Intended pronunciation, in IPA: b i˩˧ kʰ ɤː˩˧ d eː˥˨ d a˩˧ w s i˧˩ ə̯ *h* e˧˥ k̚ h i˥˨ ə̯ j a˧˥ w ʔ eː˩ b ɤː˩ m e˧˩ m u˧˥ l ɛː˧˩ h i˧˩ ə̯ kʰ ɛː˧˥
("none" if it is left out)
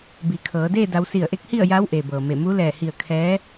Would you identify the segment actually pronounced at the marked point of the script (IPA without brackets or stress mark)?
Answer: ʔ